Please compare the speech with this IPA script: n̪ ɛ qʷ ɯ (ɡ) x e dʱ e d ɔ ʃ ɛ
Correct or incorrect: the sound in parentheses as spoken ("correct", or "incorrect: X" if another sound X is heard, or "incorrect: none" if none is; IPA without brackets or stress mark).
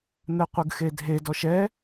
correct